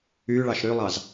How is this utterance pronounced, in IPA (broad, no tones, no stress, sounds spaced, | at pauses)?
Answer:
y ɭ ɑ ʃ ɾ y lˠ ɑ z